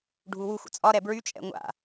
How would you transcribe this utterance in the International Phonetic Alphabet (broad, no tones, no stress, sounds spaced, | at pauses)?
ɖʱ u w u xʷ ə̰ t͡sʼ ɒ ɾ ɛ b ɹ y t͡ʃʼ ɛ̰ ŋʷ a̰